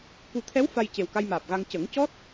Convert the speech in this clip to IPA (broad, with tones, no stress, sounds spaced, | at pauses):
k u˨˩˦ t̪ʰ ɛ˧˥ w f a˧ j c e˨˩ w k a˧ j m aː˨˩ p̚ ɣ a˧ ŋ c ə˨˩˦ ŋ c ɔ˦˥ t̚